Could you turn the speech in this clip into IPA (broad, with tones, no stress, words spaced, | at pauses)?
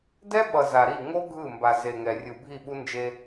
dɛ˦ɓʌ˨ za˨ɾi˦˨ ŋo˦ ɡʱɯ˦˨mba˨ ze˨ŋɛ˨ rʲɯ˨bʱi˦˨ɓu˦ nd͡ʒe˦